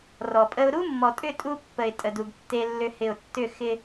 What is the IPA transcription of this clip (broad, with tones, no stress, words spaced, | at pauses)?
rɔ˨pʼə˦ʊ̯ ɾu˦mːɔ˨tʼʏ˦˨ tʼu˦ pːə˨ɪ̯tʼə˨du˨ɡ tːe˦lːʏ˦hɪ˦˨ʊ̯ tːʏ˦˨xɪ˦